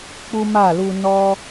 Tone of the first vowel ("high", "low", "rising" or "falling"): high